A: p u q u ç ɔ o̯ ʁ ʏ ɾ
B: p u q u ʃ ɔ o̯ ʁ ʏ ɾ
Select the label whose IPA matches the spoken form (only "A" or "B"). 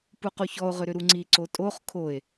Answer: A